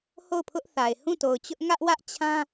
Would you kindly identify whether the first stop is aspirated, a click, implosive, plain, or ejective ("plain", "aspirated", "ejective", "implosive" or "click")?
aspirated